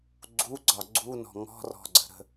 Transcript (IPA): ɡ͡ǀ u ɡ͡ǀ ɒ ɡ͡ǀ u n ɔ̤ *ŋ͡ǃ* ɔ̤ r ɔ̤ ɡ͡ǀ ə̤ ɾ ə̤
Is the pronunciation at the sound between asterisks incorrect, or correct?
incorrect